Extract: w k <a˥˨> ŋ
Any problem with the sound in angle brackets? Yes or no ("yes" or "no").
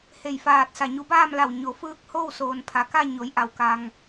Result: yes